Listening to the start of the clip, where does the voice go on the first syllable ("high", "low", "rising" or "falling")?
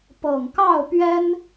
low